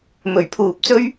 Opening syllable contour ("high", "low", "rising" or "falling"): low